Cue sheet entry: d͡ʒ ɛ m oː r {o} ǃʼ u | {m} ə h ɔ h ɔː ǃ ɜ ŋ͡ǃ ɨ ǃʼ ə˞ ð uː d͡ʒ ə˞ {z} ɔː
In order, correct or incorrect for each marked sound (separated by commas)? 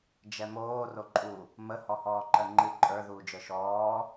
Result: correct, correct, incorrect